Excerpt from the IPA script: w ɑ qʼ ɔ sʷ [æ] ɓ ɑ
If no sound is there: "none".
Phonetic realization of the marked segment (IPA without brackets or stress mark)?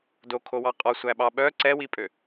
æ